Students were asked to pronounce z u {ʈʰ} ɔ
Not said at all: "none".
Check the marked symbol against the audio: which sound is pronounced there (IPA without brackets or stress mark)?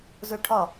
ʈʰ